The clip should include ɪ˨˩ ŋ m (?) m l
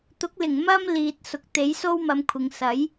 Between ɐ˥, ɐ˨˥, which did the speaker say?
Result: ɐ˥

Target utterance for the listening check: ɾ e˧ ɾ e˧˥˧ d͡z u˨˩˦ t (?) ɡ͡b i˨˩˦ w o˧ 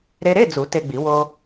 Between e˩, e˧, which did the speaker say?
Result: e˧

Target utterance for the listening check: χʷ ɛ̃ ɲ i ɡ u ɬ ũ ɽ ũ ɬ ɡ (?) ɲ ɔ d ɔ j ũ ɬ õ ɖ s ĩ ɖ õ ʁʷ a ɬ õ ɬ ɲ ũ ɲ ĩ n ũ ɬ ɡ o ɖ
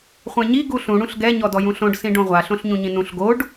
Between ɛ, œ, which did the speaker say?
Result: ɛ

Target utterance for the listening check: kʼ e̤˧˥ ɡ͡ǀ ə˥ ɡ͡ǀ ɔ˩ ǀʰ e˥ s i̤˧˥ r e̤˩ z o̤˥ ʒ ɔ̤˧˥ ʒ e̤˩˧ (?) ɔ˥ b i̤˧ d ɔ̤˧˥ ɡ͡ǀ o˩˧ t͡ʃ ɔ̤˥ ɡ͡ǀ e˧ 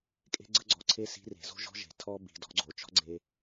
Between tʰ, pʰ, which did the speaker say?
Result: tʰ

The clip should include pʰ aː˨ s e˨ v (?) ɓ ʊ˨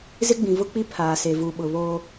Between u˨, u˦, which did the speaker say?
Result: u˨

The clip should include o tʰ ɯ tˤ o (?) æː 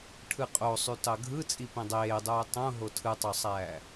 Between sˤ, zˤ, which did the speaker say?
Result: sˤ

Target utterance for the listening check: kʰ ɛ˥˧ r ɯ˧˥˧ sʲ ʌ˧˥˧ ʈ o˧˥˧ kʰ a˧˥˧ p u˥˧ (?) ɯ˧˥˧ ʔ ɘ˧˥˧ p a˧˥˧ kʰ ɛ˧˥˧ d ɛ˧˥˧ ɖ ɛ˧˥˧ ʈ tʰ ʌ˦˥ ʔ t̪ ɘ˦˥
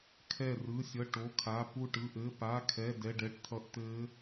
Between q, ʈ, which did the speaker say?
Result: ʈ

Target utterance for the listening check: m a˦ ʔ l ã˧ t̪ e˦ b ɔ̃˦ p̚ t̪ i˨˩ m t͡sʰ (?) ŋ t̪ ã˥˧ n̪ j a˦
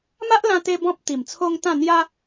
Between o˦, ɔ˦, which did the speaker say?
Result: o˦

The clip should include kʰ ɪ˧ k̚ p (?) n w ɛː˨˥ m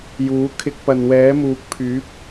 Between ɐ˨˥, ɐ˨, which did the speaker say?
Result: ɐ˨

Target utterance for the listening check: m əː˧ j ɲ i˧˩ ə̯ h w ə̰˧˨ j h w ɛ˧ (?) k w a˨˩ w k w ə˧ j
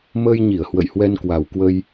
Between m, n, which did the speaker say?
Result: n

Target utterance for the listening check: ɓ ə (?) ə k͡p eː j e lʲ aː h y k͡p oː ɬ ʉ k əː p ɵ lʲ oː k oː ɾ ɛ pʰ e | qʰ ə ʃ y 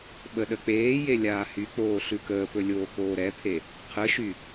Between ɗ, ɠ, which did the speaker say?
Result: ɗ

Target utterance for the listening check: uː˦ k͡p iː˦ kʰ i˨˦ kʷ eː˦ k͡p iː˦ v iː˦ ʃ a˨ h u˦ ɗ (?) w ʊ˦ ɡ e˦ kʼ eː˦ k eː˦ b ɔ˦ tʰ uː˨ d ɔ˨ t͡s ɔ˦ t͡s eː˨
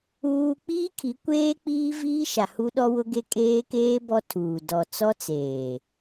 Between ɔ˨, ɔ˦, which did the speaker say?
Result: ɔ˦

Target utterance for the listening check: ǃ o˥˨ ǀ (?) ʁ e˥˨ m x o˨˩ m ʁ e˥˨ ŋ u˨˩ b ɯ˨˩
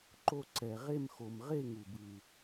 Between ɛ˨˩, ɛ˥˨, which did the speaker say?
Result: ɛ˨˩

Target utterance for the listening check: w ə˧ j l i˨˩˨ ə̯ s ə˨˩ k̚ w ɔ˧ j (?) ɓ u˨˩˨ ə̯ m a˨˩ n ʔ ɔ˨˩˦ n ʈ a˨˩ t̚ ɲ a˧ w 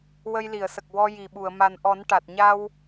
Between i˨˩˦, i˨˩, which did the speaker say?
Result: i˨˩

